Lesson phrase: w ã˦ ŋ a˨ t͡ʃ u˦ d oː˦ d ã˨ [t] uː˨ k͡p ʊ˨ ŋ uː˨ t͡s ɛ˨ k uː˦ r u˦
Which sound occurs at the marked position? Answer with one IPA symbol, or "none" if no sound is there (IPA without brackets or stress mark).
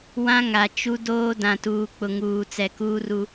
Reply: t